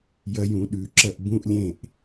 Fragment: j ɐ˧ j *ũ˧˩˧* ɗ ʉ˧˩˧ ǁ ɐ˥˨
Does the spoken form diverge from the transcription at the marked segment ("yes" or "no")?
no